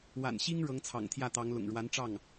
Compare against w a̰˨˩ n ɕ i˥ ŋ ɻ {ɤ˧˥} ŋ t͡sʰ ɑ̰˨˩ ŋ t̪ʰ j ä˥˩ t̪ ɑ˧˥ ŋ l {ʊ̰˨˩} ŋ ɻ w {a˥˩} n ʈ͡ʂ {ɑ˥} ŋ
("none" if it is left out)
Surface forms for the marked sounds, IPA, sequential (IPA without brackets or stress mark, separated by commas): ɤ˧˥, ʊ̰˨˩, a˧˥, ɑ˥˩